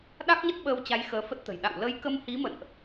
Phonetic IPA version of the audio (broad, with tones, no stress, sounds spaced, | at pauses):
ɗ a˦˥ k̚ ɲ ə˦˥ t̚ ɓ əː˧ w t͡ɕ a˨˦ j x əː˨˦ f ə˦˥ t̚ t̪ ə̤˨˩ j ɗ a̰˧˨ w l ə˨˦ j k ə˧ m h i˨˦ m ə̰˧˨ n ʔ